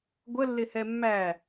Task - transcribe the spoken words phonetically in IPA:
ɡʷ ə lː ɪ h ɛ mː æ

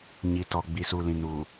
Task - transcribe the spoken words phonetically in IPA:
ɲ i˨ t ɔ˨ ɡ͡b i˨ s uː˨ l ĩ˨ n uː˨

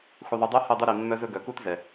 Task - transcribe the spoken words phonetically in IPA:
x u˨ ðˤ u˨ dˤ œ˦ h œ˦˨ dˤ u˦ ɾ i˨ mː œ˦ z ɵ˦ ɡ œ˨ k u˦ t z ɛ˨

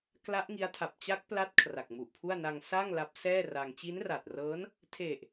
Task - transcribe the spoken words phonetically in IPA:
k l a˦˥ ʔ ŋ i˦˥ a̯ tʰ a˨˩ p̚ t͡ɕ a˦˥ k̚ p l a˦˥ t̚ kʰ r a˨˩ k̚ m u˨˩ ʔ pʰ u˥˩ a̯ n a˧ ŋ s a˥˩ ŋ l a˦˥ p̚ s ɛː˥˩ r a˧ ŋ t͡ɕ i˦˥ n r a˨˩ t̚ r ɤː˦˥ n | tʰ e˨˩ ʔ

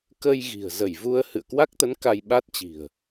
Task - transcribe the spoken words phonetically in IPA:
k ə˧ j ɣ i̤˨˩ ə̯ z ə˧˩ j v u˧ ə̯ h ɨ̰˧˨ ə̯ k w a˦˥ k̚ t̪ ə˨˦ n k a˧ j ɓ a˦˥ t̚ t͡ɕ i̤˨˩ ə̯

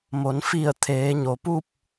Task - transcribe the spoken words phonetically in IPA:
m o˩˧ n f i˧˩ ə̯ t̪ʰ eː˩˧ ɲ o˩ p u˥˨ p̚

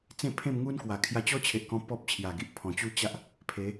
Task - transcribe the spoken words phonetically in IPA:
t͡s ẽ˥˧ pʰ ẽ˥˧ m ŋ u˦ n k w a˨˩ kʰ j a˧ t͡ɕ ɔ˦ t͡ɕʰ e˨ ʔ k ɔ̃˧ p ɔ˦ p̚ t͡ɕʰ j a˨˩ ɡ i˨ ʔ pʰ ɔ̃˨˩ t͡ɕ u˦ t͡ɕ a˦ ʔ | pʰ e˨˦

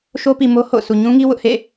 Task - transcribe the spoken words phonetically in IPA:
ʃ o˦ p i˨ m o˦ h o̰˦˨ ʊ̯ s u˨ ɲ ũ˦ ŋ i˦ w ʊ˦ ʔ h ḛ˦˨

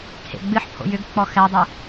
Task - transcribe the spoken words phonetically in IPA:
kʰ ḛ ɡ͡b ɨ ħ pʰ o̰ j ʏ ɡ k͡p ɔ x ɛ dˤ u

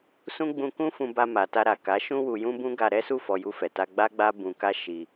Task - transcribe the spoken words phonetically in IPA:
s ũ˦ ɡ͡b ũ˧ k ũ˦ f ũ˧ b a˧ m a˨ t a˧ ɾ a˨ k a˨˦ ʃ ũ˧ w u˨ j ũ˧ b ũ˦ ɡ a˧ ɾ ɛ˦ s u˦˨ f ɔ˧ j u˧ f ɛ˨ t a˧ ɡ͡b a˦ ɡ͡b a˦ b ũ˧ k a˦ ʃ i˧

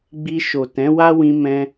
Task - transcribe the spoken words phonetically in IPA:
ɡ͡b i˧ ʃ o˨ t ɛ̃˨˦ w a˦ w ĩ˧ m ɛ̃˧

